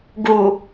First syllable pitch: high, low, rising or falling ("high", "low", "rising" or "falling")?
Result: low